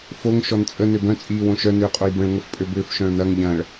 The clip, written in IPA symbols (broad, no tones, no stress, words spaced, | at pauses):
foŋ ʃɔnt͡sʼə nøbœ̃ t͡sʼiːwõʃœ nʏːqʼojbə̃ɭ ŋəfpʼøbʏːf ʃœ̃ɭnɐŋ ʎɐ̃ːɭ